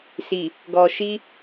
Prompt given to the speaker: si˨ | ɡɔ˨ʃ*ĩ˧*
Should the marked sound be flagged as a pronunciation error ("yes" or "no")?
yes